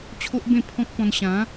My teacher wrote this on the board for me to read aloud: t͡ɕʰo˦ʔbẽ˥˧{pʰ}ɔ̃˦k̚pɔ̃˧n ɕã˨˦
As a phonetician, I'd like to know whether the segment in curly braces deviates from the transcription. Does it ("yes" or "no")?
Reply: no